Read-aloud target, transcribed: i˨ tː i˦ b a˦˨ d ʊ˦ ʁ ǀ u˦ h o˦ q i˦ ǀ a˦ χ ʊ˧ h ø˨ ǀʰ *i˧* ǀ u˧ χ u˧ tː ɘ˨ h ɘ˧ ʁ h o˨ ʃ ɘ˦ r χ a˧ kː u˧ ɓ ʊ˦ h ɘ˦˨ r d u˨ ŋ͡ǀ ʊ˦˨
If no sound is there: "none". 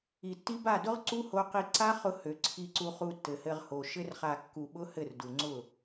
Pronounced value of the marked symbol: i˧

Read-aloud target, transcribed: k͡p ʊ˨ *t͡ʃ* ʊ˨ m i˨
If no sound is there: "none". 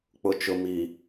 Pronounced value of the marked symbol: t͡ʃ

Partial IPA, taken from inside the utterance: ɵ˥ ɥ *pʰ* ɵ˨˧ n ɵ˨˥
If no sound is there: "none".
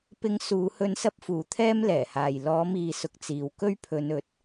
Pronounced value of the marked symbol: pʰ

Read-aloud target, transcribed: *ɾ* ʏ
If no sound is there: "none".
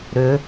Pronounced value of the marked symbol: ɾ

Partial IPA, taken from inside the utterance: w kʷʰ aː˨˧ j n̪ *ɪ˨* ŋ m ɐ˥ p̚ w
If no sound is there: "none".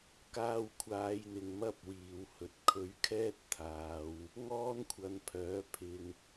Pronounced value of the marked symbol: ɪ˨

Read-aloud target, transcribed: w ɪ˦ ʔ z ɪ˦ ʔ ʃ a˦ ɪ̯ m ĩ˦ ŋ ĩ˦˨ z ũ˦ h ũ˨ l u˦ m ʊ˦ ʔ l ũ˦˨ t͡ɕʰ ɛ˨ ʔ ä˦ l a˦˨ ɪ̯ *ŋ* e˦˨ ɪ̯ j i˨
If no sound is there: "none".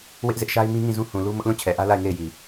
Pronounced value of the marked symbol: ŋ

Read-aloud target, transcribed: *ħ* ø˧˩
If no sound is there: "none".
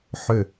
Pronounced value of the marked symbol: ħ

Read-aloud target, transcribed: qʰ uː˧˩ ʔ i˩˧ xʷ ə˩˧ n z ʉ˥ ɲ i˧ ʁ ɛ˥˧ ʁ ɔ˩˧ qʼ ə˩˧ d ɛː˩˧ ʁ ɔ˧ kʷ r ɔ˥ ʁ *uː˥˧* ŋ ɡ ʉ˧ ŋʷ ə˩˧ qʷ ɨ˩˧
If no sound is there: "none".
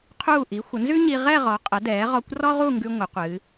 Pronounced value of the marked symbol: u˥˧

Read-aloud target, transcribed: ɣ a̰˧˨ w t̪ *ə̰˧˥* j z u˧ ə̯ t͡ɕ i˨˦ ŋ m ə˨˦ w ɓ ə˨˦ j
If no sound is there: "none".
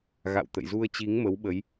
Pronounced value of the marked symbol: ə̰˧˨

